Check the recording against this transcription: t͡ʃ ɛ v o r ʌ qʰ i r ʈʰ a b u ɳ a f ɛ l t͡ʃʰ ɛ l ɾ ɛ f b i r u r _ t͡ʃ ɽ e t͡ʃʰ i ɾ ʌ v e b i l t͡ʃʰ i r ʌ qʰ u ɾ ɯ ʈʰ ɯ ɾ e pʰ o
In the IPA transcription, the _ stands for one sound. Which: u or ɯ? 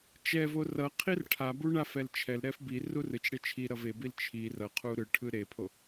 ɯ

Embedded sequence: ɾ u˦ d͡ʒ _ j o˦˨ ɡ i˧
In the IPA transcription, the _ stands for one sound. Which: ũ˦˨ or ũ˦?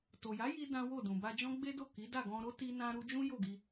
ũ˦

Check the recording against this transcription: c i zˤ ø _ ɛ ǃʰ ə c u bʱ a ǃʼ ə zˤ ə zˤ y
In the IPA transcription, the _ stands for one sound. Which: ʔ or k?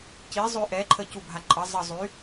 ʔ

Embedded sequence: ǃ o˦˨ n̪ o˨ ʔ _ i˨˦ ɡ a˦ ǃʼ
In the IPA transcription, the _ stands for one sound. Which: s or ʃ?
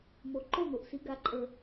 s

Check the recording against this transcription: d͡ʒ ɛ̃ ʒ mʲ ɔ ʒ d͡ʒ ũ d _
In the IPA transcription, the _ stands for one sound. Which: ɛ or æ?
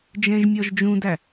æ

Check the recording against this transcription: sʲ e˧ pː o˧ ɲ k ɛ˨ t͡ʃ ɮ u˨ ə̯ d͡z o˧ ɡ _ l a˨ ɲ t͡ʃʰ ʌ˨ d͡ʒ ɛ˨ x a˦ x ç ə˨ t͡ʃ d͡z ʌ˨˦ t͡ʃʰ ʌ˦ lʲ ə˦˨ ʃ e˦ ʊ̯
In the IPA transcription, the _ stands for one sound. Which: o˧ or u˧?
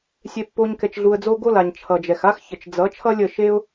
o˧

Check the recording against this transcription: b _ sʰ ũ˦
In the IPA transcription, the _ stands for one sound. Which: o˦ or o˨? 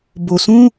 o˨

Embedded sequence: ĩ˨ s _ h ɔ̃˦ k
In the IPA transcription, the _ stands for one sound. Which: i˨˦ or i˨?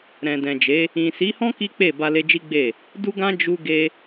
i˨˦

